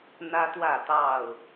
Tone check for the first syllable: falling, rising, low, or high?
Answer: high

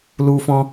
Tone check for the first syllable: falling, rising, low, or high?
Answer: high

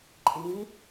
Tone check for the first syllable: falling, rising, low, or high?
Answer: rising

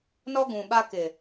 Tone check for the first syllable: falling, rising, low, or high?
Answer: high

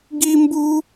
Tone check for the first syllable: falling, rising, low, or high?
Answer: high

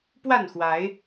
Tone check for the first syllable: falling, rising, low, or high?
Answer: falling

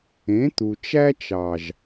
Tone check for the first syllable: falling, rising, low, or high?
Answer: rising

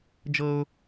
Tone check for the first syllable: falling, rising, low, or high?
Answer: high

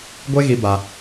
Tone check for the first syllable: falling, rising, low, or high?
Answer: high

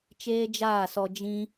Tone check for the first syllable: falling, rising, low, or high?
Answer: high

